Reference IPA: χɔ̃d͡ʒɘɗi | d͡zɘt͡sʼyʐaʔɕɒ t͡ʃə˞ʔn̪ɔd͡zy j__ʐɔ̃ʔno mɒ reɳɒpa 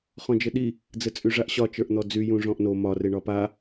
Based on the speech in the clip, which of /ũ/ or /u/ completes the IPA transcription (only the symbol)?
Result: ũ